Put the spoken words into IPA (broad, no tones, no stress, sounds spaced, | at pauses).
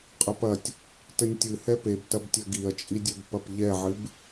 qʼ ɐ p ɐ tʲ | t ɘ nʲ tʲ ɨ h ɛ p e b t ɐ b tʲ ɐ ɡ i ɐ̯ t͡ʃʼ i dʲ e b p ɐ p ʎ ɛ ʕ ɨ b